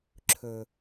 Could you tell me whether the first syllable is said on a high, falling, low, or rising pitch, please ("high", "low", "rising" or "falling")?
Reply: low